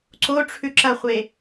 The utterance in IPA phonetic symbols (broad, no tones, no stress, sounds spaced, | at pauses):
ǀ o ʈ͡ʂʰ ʉ ǁ ɐ χʷ e